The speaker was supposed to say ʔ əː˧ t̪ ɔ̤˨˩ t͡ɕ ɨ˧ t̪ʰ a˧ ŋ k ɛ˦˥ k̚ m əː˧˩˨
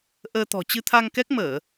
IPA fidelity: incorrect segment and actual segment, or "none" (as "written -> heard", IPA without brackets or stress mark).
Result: none